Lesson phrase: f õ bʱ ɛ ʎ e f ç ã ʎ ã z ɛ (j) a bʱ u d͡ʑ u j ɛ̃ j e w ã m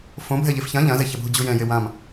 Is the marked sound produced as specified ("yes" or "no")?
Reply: no